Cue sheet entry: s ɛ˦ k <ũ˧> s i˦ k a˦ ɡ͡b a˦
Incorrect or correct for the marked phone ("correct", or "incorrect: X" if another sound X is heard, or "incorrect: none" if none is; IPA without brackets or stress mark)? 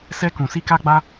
correct